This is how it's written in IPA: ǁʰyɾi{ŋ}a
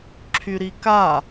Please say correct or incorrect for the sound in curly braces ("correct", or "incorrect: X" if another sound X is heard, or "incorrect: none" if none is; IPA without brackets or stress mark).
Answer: incorrect: k